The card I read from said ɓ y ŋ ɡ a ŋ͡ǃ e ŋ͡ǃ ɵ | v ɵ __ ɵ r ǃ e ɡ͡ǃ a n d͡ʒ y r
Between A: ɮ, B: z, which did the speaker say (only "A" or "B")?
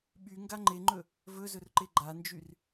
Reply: B